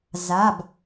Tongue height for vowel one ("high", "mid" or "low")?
low